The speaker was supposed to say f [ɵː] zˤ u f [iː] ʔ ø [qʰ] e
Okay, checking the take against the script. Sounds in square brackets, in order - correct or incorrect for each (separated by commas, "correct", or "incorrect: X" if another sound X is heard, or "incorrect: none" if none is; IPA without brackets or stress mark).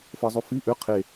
incorrect: əː, incorrect: i, correct